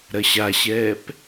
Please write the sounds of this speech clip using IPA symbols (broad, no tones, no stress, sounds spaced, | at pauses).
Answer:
ɾ ɐ ɕ a ɕ ɛː p